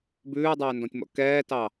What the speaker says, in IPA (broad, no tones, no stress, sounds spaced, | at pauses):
b ʉː dˤ ɛː n d ɔ̃ tʲ m ɔ̰ k ɛː t ɑ